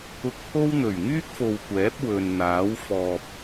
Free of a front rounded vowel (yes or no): no